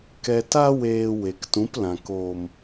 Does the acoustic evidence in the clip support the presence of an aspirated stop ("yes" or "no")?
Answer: no